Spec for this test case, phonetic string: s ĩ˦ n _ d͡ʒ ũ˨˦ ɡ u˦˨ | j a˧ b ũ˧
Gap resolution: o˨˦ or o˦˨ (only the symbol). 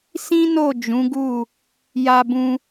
o˦˨